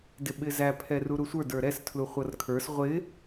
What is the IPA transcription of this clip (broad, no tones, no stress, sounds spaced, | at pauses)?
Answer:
d ɪ ɓ ɪ z æ pʰ ɛ r u ɾ u sʷ ə˞ d ə˞ ɾ ɛ s tʰ l u χʷ ʌ r kʰ ə˞ s ʁʷ ɪ